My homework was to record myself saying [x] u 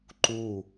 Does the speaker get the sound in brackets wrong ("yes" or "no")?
yes